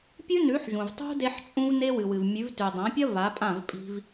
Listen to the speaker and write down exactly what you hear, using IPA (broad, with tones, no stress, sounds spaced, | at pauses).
pʲ ʉ˦ n ʉ˨˦ ħ ʒ ũ˨ v tˤ ṳ˦ d e˦ ħ t͡ʃʼ ũ˦ v n e˦ w ɨ˨ w ɨ˨ v mʲ ʉ˨˦ v t ʉ˨ dˤ ã˨˦ pʲ ɐ˦ v a˨˦ pʼ ã˦˨ v pʼ i̤˦ v